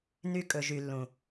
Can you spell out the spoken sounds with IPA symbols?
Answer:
n y˧ kʼ ɵ˨ ʒ y˨ lː ũ˨

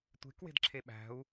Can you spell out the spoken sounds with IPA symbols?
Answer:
tʷ e̤ k w e̤ d ǁʰ e ɓ æ̤ u̯

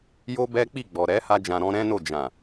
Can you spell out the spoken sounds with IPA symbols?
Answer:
j o˦ b ɛ˦ k͡p i˦˨ ɡ͡b ɔ˨ ɾ ɛ˨˦ h a˧ d͡ʒ ã˨ ɾ ɔ̃˧ ɾ ɛ̃˦ n o˦˨ d͡ʒ ã˨

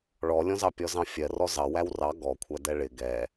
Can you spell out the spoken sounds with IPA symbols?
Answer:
ɭ ɔ lʲ ɔ̃ z ɑ pʲ ɔ z ɑ̃ fʲ ɜ r ɔ z ɑ w æ w r ɑ ɡ ɔ kʷʰ æ d ɛ ɭ ɪ ɡ ɛ

